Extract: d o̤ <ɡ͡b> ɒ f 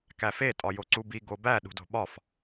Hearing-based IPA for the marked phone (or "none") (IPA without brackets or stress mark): ɓ